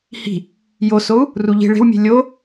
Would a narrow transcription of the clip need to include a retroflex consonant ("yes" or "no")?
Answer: yes